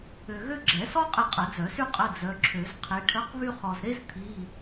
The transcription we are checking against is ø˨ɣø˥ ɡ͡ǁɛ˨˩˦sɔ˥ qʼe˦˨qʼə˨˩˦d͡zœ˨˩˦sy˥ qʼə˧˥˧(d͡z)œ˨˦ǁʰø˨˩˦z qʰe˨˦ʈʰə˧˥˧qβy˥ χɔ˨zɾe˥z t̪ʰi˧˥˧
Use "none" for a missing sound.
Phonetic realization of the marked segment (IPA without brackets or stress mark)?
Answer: d͡z